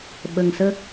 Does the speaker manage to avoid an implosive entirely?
no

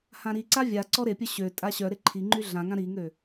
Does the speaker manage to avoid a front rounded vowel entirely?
no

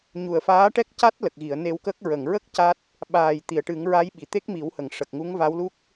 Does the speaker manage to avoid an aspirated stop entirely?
yes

